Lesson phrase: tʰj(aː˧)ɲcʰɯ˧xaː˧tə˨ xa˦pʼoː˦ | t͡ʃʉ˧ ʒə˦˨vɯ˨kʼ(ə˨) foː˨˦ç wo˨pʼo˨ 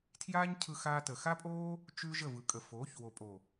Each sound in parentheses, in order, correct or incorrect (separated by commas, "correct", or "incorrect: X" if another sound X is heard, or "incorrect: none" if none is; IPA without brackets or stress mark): incorrect: aː˦, correct